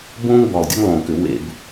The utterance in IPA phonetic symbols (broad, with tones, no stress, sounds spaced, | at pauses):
b õː˦ ŋ b ɔ˨˩ lˠ dʲ ɛ˦ ŋ lˠ õː˨˩ k ʏ˧˩˧ w ḛ˧˩˧ b